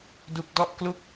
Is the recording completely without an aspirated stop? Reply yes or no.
yes